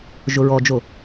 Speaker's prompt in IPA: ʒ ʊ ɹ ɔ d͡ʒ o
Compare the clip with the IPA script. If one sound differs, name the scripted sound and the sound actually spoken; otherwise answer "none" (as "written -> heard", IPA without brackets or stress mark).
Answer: none